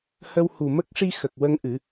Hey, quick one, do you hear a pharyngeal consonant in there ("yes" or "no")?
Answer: no